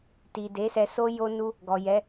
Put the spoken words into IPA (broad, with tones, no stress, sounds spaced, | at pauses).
t i˨ d e˨˦ s ɛ˧ s o˦ j o˦ n u˦ | ɡ ɔ˨ j ɛ˨˦